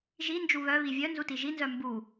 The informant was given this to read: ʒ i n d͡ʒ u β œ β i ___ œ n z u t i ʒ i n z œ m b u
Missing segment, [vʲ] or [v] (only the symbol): vʲ